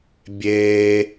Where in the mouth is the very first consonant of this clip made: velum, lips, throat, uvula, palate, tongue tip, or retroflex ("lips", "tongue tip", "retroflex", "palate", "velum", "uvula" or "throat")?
lips